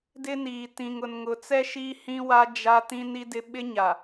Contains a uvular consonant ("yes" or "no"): no